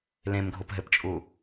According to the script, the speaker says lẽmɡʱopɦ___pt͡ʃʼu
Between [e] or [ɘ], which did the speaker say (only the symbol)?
ɘ